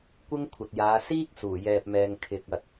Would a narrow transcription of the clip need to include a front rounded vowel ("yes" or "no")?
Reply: no